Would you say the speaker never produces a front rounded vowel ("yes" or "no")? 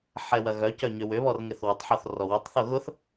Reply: no